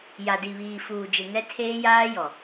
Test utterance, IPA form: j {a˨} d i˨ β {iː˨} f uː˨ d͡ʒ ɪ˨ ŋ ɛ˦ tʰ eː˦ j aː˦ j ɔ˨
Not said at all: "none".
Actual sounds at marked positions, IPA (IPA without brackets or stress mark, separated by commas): a˨, iː˨